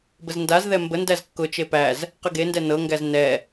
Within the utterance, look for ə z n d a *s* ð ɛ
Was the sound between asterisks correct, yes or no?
no